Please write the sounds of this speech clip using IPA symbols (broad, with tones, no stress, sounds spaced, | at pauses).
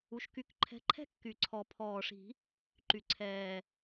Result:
u˨˦ ʃ k y˨˦ k ǃʰ ɛ̤˨˦ ǃʰ ɛ̤˦˥ kː y˨˩ ǀʰ ɔ˨˩˦ pʰ ɔː˨˩ ʂ i̤˨˩˦ | ǃ y˨˩ ǀʰ ɛː˨˩